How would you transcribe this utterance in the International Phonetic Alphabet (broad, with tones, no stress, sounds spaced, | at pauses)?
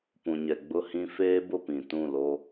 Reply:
p ũ˨ ɲ ɛ˨ ɡ͡b ʊ˦ h ĩ˦ f eː˦ b ʊ˦˨ p ĩ˨ t ũ˦˨ l o˦